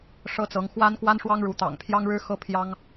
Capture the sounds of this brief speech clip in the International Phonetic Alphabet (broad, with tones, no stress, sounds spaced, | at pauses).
ʂ ɤ˥ t͡s ɤ˧˥ ŋ x w a˥ n k w a˥ n ʂ w ɑ˥ ŋ ɻ u˧˥ t̪ ɑ̰˨˩ ŋ pʰ j ɑ˥ ŋ ɻ ɻ̩˥ x ɤ˥ pʰ j ɑ˥ ŋ